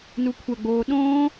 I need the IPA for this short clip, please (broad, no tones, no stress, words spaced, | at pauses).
nukʷʰɐɡ͡boː ɗõː